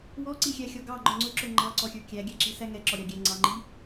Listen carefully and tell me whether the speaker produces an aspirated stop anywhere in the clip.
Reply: no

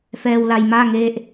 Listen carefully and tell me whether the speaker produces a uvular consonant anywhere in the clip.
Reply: no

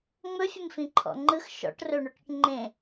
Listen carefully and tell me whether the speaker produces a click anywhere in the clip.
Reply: yes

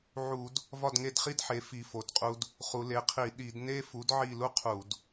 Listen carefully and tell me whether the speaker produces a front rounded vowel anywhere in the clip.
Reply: no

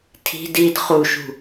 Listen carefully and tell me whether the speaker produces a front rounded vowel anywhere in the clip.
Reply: no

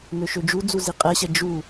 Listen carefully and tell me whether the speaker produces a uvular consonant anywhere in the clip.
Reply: yes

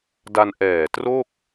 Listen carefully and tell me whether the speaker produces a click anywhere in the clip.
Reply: no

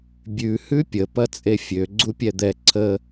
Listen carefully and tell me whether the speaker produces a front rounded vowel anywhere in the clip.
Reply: yes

